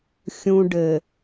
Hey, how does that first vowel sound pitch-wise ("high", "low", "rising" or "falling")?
low